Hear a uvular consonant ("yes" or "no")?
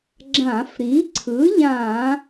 no